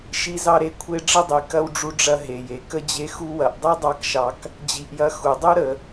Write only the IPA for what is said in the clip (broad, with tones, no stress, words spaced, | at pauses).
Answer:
ʃi˥zɑ˥ɾe˦kʷʰe˥ ɖ͡ʐə˥dˤi˨ kɐ˥wɖ͡ʐu˦ɖ͡ʐɐ˦ ɦe˩je˩ kə˥d͡ʑe˦xu˥ wɐ˨ʔdˤi˥dˤɑ˦kʃɑ˨k | d͡ʑi˨ʔjɐ˦ xu˩dˤu˥ ɾə˨